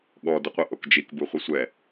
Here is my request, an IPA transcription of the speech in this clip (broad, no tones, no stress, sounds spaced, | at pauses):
ɠ ɔ d ə qʷ ə ʔ o k d͡ʒ i k b u χʷ i sʷ ɛ